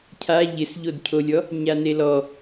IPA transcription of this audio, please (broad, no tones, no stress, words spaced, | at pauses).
cʰa ʎɪsʎodcʰolʲɔ | ɲanelɔ